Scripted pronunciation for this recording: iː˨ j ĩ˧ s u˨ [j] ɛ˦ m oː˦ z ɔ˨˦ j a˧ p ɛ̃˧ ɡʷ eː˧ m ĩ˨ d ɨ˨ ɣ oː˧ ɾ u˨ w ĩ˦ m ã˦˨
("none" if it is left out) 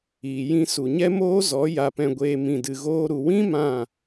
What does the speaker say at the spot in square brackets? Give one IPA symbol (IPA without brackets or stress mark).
ɲ